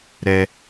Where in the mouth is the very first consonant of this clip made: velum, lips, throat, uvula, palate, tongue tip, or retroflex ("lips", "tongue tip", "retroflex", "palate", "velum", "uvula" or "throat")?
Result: tongue tip